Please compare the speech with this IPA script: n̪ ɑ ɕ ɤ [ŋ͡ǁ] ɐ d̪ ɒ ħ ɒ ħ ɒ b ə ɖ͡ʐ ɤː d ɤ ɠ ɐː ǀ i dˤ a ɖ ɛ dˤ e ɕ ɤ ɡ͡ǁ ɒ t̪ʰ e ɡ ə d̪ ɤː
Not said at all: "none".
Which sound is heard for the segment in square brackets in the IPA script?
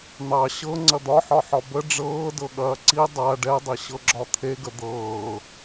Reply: ŋ͡ǀ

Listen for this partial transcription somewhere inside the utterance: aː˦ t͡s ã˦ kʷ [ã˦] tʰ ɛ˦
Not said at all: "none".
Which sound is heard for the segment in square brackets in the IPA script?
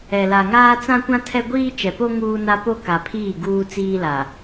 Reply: ã˦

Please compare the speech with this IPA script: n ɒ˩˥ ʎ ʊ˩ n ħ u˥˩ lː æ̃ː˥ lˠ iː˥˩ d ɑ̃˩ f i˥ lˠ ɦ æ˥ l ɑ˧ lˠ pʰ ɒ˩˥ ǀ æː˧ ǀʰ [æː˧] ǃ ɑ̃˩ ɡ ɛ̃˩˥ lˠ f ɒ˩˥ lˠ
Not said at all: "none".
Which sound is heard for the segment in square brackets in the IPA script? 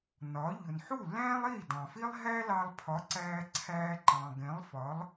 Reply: æː˧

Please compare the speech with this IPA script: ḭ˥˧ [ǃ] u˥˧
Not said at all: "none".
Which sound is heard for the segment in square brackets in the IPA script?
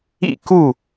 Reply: k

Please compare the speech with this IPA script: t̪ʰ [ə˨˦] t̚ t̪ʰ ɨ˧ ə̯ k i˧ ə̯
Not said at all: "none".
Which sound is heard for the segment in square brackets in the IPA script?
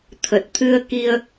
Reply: ə˨˩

